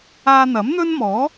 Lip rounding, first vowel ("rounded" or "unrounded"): unrounded